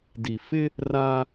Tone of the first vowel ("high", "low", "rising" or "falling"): low